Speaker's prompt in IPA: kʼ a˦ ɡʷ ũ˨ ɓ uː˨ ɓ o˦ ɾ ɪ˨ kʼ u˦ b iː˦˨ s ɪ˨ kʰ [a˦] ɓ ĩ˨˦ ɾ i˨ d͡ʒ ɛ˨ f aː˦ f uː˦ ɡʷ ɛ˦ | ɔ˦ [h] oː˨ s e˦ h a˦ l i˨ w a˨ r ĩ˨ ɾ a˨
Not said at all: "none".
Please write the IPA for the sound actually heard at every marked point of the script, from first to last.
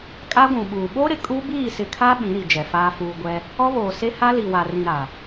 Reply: a˦, β

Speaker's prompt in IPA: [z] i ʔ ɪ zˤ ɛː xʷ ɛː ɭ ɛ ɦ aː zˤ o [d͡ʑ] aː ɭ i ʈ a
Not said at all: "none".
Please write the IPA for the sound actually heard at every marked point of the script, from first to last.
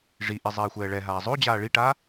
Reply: ʐ, d͡ʑ

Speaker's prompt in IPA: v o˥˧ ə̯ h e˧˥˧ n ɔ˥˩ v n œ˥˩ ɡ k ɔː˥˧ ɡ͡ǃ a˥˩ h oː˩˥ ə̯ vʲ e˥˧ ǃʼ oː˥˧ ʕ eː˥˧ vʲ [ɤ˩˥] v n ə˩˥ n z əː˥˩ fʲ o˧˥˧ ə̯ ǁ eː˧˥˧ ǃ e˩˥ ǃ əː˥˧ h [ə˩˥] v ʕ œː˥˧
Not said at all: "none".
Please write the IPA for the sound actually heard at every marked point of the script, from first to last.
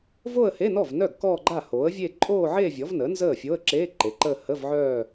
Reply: ɔ˩˥, ə˧˥˧

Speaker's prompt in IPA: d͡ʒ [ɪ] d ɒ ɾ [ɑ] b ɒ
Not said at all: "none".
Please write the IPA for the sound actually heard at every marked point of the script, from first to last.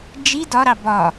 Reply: i, ɑ

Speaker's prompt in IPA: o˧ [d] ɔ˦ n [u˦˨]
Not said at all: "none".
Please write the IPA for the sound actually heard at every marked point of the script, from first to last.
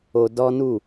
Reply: d, u˦˨

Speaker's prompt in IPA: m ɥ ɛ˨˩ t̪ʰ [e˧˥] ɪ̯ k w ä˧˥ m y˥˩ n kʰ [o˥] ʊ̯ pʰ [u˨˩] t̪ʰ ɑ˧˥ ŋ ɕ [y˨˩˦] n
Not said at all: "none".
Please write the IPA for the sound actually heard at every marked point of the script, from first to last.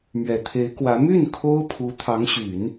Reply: e˧˥, o˥, u˧˥, y˨˩˦

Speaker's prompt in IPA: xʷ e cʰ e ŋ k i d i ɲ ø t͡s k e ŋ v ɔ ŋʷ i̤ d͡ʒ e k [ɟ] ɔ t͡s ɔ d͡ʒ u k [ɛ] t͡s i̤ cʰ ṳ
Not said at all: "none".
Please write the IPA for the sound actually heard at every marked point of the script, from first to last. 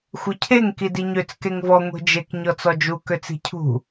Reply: ɲ, ø

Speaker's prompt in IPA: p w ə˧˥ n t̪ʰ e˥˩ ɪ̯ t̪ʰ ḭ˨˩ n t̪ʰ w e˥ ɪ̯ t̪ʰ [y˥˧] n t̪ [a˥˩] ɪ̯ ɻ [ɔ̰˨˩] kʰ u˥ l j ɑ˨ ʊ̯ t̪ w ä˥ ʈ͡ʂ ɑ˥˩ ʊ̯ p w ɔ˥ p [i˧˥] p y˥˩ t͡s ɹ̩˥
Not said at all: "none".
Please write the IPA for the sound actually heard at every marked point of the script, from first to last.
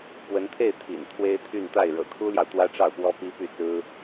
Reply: y˥˧, a˥˩, ɤ̰˨˩, i˥

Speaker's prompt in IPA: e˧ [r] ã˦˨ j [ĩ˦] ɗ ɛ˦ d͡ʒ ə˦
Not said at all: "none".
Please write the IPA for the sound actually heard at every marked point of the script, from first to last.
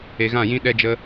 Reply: ɣ, ĩ˦

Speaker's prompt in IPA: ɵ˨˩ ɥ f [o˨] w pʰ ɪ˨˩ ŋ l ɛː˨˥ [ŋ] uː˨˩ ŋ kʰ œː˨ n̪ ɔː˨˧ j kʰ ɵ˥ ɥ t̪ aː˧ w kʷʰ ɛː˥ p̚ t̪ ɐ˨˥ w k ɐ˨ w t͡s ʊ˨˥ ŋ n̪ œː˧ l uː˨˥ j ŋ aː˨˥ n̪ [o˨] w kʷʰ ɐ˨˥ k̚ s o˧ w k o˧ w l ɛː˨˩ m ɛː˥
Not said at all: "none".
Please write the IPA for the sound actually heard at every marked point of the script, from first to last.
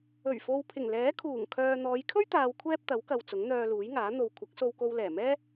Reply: o˨, kʰ, o˨

